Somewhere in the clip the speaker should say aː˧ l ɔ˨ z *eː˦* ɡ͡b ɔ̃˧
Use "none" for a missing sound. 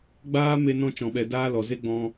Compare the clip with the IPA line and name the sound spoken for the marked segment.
e˦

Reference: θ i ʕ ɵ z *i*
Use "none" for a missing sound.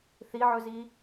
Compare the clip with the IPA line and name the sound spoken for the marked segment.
i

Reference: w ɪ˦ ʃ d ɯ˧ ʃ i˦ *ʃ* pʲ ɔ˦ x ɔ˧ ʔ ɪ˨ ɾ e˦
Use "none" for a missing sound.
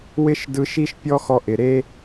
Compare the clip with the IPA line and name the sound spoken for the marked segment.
ʃ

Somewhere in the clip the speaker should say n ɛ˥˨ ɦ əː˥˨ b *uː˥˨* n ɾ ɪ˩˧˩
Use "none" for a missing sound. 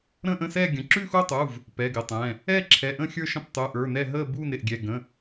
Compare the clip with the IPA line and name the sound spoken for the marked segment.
uː˥˨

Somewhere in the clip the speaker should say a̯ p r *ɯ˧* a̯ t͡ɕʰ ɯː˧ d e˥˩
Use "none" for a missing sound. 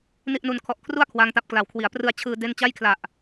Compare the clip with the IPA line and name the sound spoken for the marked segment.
ɯ˧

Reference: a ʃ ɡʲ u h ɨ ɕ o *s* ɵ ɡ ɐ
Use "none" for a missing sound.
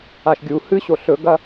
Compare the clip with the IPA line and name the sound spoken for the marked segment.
ɬ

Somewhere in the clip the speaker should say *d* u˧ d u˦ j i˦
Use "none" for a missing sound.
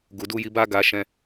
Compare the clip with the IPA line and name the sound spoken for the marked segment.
ɡ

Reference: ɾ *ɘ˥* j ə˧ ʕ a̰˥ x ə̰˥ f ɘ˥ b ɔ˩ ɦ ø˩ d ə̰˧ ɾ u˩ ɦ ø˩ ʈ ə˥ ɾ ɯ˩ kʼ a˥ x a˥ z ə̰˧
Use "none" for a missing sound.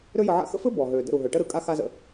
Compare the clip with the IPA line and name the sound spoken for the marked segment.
ø˥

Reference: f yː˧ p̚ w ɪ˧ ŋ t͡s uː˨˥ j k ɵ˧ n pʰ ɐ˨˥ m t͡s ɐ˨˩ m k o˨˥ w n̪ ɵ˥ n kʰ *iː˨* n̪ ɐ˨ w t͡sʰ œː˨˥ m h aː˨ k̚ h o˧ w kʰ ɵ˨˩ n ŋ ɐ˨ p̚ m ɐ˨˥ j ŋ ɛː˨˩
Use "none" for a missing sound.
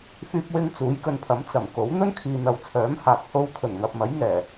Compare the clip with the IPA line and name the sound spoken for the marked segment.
iː˨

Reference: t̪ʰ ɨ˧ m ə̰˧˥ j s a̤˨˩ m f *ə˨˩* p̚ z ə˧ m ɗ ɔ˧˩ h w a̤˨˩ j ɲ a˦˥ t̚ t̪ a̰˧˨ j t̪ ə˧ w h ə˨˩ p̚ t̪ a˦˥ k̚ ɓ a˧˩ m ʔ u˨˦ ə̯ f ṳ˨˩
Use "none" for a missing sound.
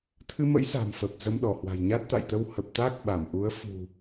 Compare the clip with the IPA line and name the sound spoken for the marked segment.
ə˨˩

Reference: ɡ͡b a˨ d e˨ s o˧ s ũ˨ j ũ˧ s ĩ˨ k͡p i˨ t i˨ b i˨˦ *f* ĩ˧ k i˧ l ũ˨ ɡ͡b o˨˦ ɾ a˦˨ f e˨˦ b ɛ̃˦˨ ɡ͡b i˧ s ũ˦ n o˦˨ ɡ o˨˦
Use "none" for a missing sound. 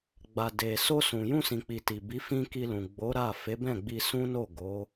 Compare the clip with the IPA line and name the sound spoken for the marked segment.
f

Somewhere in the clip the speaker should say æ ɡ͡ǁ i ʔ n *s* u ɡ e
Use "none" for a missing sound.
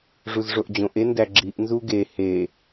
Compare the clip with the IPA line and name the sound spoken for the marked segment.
z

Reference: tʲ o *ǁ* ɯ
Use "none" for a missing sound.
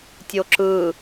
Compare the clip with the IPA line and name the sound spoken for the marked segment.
ǁ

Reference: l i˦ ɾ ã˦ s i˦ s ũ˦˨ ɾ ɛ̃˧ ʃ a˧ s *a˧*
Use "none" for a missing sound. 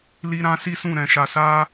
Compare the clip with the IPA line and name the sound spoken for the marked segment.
a˦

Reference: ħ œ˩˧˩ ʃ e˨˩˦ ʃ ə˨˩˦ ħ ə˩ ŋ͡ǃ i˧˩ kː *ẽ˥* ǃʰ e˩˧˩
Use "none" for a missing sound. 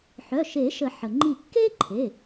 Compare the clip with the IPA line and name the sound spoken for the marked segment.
e˥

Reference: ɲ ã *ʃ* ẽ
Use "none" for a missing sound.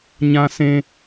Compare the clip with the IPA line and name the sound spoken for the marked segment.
s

